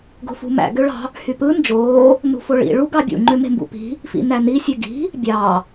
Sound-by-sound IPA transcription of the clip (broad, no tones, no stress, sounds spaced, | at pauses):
ɡ o̤ f ṳ m æ̰ ɡ ø ɭ ɑ̤ | h y p ɯ n d͡ʒ oː | n ṳ f o ɭ ḭ ɭ u ɡ ɑ bʲ ṵ ŋ͡ǃ ø m e̤ m b ṵ p i̤ | f ḭ n æ n i sʲ ø ɡ i̤ | bʲ ɑ